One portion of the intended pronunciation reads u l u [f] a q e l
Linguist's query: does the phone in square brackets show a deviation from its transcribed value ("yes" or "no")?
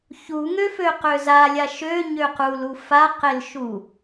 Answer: no